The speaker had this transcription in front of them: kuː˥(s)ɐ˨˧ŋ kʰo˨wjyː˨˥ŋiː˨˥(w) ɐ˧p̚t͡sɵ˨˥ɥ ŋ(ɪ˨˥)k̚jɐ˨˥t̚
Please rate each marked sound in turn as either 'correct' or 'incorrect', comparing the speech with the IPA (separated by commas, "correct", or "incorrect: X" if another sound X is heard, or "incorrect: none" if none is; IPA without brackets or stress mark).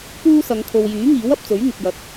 correct, correct, incorrect: ɪ˨